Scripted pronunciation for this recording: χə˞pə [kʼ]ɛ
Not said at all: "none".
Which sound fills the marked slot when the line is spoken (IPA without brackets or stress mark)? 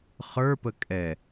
kʼ